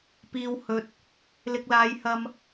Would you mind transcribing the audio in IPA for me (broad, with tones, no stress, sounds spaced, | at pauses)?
p iː˨ w h ɵ˨ t̚ | l ɪ˨ k̚ l aː˨˧ j h ɐ˧ m